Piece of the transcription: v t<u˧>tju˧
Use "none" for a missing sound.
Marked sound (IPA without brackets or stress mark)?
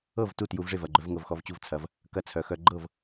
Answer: u˥˩